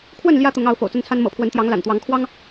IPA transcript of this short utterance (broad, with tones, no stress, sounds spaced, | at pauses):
kʰ w ə˥˨ n l j ä˦ t̪ ʊ˨˦ ŋ ɑ˨˦ ʊ̯ f o̰˨˩ ʊ̯ t͡s ə˥˨ n t͡sʰ a˦ n m ɤ̰˨˩ pʰ w ə˨˦ n t̪ j ɑ˨˦ ŋ l a̰˨˩ n t̪ w ɑ˨˦ ŋ kʰ w ɑ˦ ŋ